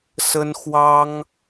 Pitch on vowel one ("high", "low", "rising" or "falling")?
high